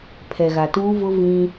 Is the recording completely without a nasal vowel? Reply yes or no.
no